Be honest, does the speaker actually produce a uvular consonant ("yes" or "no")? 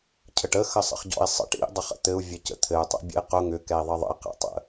yes